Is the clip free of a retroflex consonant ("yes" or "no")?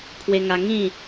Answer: yes